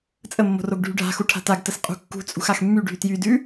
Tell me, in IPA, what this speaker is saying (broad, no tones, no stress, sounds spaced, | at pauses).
t͡sʼ ə mː o̤ r o ɡ ɖʱ y ɖʱ a̤ x u ʈʰ a̤ t a ɡ t ə s qʼ ṳ kː ṳ t͡sʼ ṳ x a x mː y ɖʱ y t j y d ʉ